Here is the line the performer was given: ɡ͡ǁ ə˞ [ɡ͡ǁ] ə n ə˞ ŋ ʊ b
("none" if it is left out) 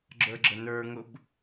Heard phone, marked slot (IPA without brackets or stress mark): ɡ͡ǁ